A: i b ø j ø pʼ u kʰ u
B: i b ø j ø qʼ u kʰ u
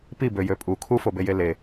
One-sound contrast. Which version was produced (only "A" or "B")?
A